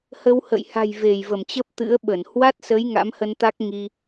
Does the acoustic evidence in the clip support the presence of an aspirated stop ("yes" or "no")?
no